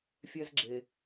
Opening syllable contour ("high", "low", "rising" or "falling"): high